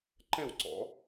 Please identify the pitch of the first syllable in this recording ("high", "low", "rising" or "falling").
falling